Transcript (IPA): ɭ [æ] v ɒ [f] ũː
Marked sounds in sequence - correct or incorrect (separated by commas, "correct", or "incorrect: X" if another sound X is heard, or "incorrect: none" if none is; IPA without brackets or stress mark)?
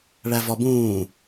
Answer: correct, incorrect: b